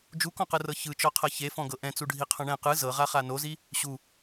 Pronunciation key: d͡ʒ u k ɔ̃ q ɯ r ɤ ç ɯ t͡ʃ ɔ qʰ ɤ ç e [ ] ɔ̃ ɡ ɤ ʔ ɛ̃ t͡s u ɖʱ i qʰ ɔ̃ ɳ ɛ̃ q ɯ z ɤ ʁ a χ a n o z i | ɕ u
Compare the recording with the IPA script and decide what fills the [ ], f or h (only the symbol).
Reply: f